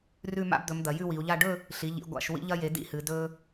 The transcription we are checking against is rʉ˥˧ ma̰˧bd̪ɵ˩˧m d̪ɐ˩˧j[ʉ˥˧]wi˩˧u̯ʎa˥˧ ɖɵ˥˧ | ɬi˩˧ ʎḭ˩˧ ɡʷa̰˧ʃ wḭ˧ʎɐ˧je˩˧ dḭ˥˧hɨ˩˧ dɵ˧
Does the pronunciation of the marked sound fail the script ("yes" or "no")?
no